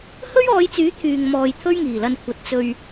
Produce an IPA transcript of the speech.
h ɵ˥ ɥ ɔː˨˧ j t͡s yː˨˥ t̪ʰ yː˨ ŋ m ɔː˨ j t̪ʰ ɵ˥ ɥ ŋ iː˨˩ l ɐ˧ n kʷʰ ɐ˨ t̚ t͡s ɵ˧ ɥ

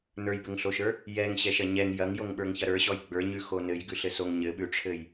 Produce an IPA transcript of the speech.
n ə˞ j b ɘ ŋ ɬ o ʃ ə˞ | j ɛ ŋ ɕ ɛ ʃ ɐ ɲ ɛ ŋ j ɐ ŋ j o ŋ ɓ ə˞ ŋ ç ɐ ɾ ə˞ ɕ ɔ j ɡ͡b ə˞ ɲ ʉ x o n ɘ j ɡ ʉ ɬ ɘ s o ŋ ɲ ɘ ɓ ʉ ʈ͡ʂʰ ɘ j

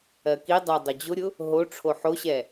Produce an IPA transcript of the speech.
ɜ k i dˤ ɜ dˤ ʊ d͡ʑ ʊ ɾʲ ʊ | ɦ o ʈ͡ʂʰ o ħ o ɕ ɛ

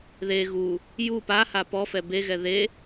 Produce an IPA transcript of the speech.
ð e ɣ u | j u p a h a p ɔ f ɛ b e ɣ ɛ ð e

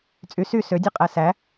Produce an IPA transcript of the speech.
t͡sʼ y s y s ø dʲ ɯ qʼ æ s æ

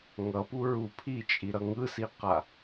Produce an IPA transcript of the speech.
ŋ ʌ p u ɹ u pʰ i t͡ʃʼ i ɾ ʌ ŋ ɯ s i q a

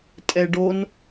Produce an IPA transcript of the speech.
tʼ ɛ ɖ o n

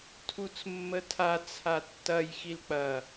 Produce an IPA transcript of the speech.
tʰ u t͡s mː ə tʰ a t͡sʰ a tː ɐ j x i l k͡p ɐ

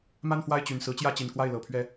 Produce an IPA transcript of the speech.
m a˥˧ n f w a˥˩ ɪ̯ t͡ɕ y˨˩ n s ɹ̩˧˥ t͡ɕ j ä˥˩ t͡ɕ i˨˩ n k w a˥˩ ɪ̯ l ɤ˨˩ pʰ ɥ ɛ˥˩

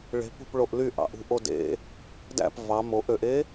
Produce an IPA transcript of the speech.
ɭ e̤ p ṳ p ɭ o ʔ l y ʔ ɑ̰ ʔ ṳ ʔ o d ḛ | d æ̰ p v ɑ m o ʔ ø ʔ e

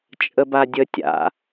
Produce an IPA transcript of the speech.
t͡ʃʼ ə b a dʲ ə tʲ a̰

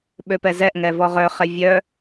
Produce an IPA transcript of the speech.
ɓ ø p ɛ z ɛ ʔ ŋ ɛ v ɔ ʁ œ χ ɛ vʲ œ

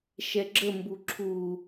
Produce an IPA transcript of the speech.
ʃ ɛ ɡ͡ǁ ə m b u ǁʰ u

